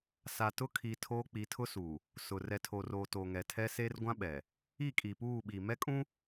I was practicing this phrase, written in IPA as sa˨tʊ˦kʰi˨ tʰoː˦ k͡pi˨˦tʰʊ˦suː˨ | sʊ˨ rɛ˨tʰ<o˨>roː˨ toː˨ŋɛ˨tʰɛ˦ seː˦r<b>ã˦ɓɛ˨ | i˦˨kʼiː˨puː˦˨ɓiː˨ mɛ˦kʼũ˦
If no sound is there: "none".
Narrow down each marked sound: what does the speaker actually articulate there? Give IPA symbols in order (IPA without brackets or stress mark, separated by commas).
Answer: o˨, ɡʷ